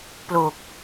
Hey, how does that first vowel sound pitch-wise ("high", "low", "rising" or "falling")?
low